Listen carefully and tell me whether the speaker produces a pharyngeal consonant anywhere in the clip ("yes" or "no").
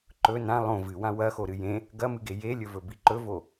no